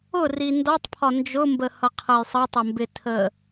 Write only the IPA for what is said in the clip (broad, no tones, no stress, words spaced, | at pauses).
ʊri ndɔtˤpʰɒ nd͡ʒʊmbəhʌqʰəj sˤətˤʌmbɪtʰə